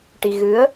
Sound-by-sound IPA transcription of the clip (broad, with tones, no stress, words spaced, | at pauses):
ʈi˧ɣɨ˧˥ə̯